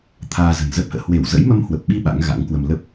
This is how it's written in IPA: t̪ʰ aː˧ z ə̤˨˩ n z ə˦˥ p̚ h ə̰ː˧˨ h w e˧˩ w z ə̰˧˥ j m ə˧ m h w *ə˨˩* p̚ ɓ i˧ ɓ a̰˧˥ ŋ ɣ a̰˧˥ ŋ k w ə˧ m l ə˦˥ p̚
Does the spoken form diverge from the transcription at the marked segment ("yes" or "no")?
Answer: no